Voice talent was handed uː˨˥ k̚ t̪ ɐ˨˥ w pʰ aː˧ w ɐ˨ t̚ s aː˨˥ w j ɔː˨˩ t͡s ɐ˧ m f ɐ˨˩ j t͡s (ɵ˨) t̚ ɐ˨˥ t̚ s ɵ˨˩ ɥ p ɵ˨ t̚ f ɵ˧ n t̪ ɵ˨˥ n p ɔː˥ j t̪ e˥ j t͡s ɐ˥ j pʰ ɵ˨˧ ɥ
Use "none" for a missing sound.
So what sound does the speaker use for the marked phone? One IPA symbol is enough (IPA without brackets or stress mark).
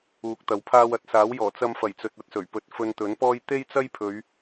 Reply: ɵ˨